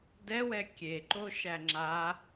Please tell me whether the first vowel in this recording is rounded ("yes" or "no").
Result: no